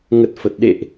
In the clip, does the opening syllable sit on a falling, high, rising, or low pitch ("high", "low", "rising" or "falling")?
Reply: low